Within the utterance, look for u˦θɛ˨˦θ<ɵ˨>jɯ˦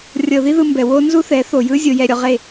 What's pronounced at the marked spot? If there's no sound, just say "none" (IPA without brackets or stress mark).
o˨